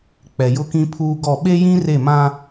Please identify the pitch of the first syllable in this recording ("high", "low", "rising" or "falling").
low